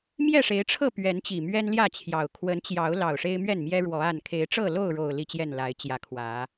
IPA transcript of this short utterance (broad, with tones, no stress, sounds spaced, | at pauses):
m j ɛ˥˨ ʂ e˨˦ ɪ̯ ʈ͡ʂʰ ɤ˥˨ p ɥ ɛ˨˦ n t͡ɕ i˨˩ m ɥ ɛ˦ n l j ä˥˨ t͡ɕʰ j ɑ˨˩ ʊ̯ kʰ w ə˨˦ n t͡ɕ j ɑ˨˦ ʊ̯ l ɑ˨˩ ʊ̯ ʂ e˦ ɪ̯ m ɥ ɛ˥˨ n m j ɛ˦ ɻ w ɔ˨˦ a˥˨ n kʰ e˨˦ ɪ̯ ʈ͡ʂ ɤ˥˨ l o˥˨ ʊ̯ ɻ o˨˩ ʊ̯ l i˥˨ t͡ɕ j ɛ˥˨ n l a˨˦ ɪ̯ t͡ɕ j ä˨˦ kʰ w ä˨˦